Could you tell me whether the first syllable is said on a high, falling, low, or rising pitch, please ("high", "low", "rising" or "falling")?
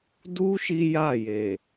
high